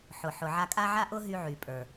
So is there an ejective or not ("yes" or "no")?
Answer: yes